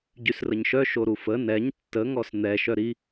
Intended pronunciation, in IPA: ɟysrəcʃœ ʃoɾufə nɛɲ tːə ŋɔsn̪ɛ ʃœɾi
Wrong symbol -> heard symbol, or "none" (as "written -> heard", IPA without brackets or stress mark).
c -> ɲ